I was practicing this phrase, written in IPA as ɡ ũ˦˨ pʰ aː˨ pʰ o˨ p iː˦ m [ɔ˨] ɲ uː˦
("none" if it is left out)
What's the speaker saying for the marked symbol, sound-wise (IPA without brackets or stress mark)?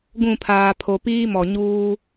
ɔ˨